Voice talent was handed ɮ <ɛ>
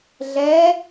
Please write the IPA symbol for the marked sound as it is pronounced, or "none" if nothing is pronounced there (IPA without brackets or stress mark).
ɛ